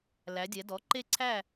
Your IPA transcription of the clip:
l æ˩˧ dʲ ɛ˩˧ d ɔ˩˥ ǃ e˧˩ ǀʰ æ˧˩

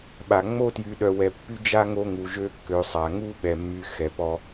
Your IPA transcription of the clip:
ɓ a˩ ŋ͡m o˥ t j y˨ ɗ œ˨ w ɛ˨ pː y˦ d͡ʒ a˦ ŋ o˦ ŋ u˨ ʒ ø˦ kː ø˨ sˤ a˩ ŋ u˥ ɓ ɛ˩ mː y˨ x ɛ˩ p ɔ˨

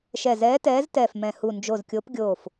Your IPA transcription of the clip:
ʃ ɛ˧˩ z ɛː˨˥ t ɛː˨˥ z t ɛː˧˩ f m ɛ̃˧˩ h u˧˩ n d͡ʒ o˧˩ z kʲ o˨˥ p ɡʲ oː˧˩ f

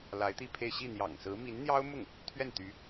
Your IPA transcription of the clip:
l a˧˥ ɪ̯ t̪ i˥˧ pʰ e˥˧ ɪ̯ ɕ i˥˩ n̪ j ɑ̰˨˩ ŋ s ɹ̩˧˥ m i˧˥ n n̪ j ɑ˥ ʊ̯ m ʊ˥˩ ŋ | t̪ʰ ɥ ɛ˥˩ n t̪ y˧˥

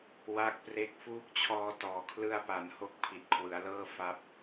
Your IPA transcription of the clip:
w a˦˥ k̚ p r e˦˥ k̚ f uː˦˥ k̚ t͡ɕʰ ɔː˧ t ɔː˨˩ kʰ l ɯ˧ a̯ p a˩˦ n h o˦˥ k̚ pʰ i˨˩ t̚ kʰ w ɯ˩˦ a̯ l ɤː˥˩ f a˥˩ p̚

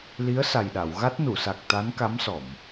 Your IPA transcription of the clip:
l i˧˥ ə̯ s a˨˩ j ɗ a˨˩˨ w ɣ a˦˥ t̚ n u˨˩˨ s a˨˩ k̚ t̪ a˧˥ n k a˧˥ m s ɔ˨˩˨ m

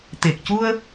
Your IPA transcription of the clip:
t̪ e˨˩ k̚ c u˧ ə̯

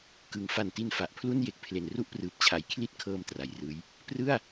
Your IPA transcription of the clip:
k ɯ˩˦ ŋ f a˨˩ n t i˧ n f a˨˩ ʔ pʰ l u˥˩ n j e˨˩ k̚ pʰ l e˨˩ n r u˦˥ ʔ p r ɯː˨˩ p̚ t͡ɕʰ a˨˩ j kʰ l i˦˥ t̚ kʰ ɤː˧ m t r a˩˦ j r ɯː˦˥ j | p r ɯ˥˩ a̯

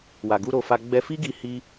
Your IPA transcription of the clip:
w a˨ ɡ u˧ ɾ o˧ f a˧ ɡ͡b ɛ˧ f i˦ ɡ i˧ h i˦

